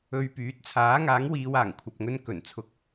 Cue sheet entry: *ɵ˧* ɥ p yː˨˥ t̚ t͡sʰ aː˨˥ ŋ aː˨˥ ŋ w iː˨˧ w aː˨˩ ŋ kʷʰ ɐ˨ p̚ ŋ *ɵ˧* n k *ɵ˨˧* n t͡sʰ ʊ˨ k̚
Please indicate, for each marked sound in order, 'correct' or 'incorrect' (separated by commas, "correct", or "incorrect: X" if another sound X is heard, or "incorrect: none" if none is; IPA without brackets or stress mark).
correct, correct, incorrect: ɵ˨˩